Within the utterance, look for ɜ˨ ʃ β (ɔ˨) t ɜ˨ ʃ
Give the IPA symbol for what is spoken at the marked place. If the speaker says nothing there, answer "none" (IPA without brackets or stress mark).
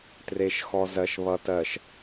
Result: ʌ˨